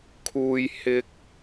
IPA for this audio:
kʰ uː˨ j h ɪ˨ k̚

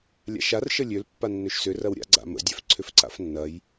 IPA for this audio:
lʲ a̰ ʃ a r ʃ ə lʲ ø l pː a nː ø ʃ s ʏ r ɐ w ɾʲ a̰ ɡ͡ǀ a̰ m ə̰ dʲ œ f ǀʰ ʏ f ǀ a̰ f nː ɐ j

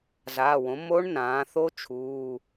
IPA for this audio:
z aː˩˧˩ w õ˩˥ m o˦˥ ɳ n ãː˩˧ θ o˦˥ t͡ʃʰ uː˩˧˩

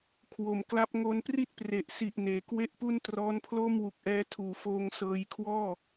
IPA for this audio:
kʰ w o˩˦ m k l a˦˥ p̚ ŋ o˧ n p r i˥˩ t̚ p r e˨˩ ʔ s i˨˩ ʔ n eː˩˦ k w e˥˩ ʔ p u˥˩ n t r ɔː˦˥ n pʰ l o˥˩ m w u˨˩ k̚ ʔ ɛː˦˥ tʰ uː˩˦ f oː˧ ŋ s ɤː˧ j kʰ w ɔː˥˩

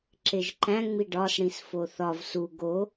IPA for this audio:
ǁ e ʒ ǃ æ̃ ŋ͡m i ɖ ɒ s ɽ ĩ s f o θ ɒ v s u ɡ o

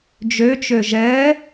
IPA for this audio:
d͡ʒ ø t͡ʃ ø ʒ ɛ

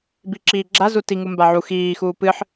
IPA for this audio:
b i ǁ iː ɡ͡ǁ a z u t i ŋ u m b a ʕ u x iː x uː p ɨ ħ

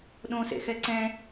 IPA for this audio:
ɗ õ s ḛ x ɛ ǀ ɛ̃

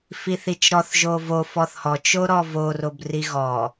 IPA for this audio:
f i θ i t͡ʃ ɾ ɔ θ ʒ o v o f ɔ θ h ɔ t͡ʃ o ɾ ɔ v o r o b r i ɣ ɔ

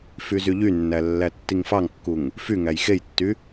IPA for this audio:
f y z y ʎ y nː æ lː æ tː i ŋ f ɑ ŋ kː u ŋ | f y ŋ æ j x e j tː y

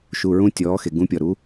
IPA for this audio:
ʃ u˩˧˩ ɹ ũ˦ tʲ ɔː˩˧ x e˩ ɡ ũ˨˥ pʲ ɔ˩ ɾ u˨˥

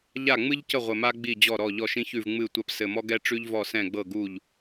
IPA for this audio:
ʎ a˥˩ ŋ͡m ɨ˥ ʎ c ə˥˩ ʁʷ ɘ˧˩ m a˥ ɡ͡b i˥˩ d͡ʑ ɔ˥˩ ɾ ɔ˥˩ ʎ ɔ˥˩ ʃ ĩ˥ ç ʉ˥˩ v ŋ͡m ɨ˥˩ tʷ a˥ p s ɘ˧˩ m ɔ˥ ɡ ɛ˥ ʈ͡ʂ ʉ˥ ʎ v ɔ˥˩ s ɛ̃˥˩ ɡ͡b ɤ˥˩ ɡ u˥˩ ʎ

